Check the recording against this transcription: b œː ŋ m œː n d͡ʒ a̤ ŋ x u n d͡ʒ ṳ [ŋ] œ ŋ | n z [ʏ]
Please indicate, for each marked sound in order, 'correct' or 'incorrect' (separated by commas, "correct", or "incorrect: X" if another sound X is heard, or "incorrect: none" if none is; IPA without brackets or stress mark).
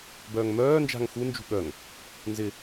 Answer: incorrect: ɠ, incorrect: ɪ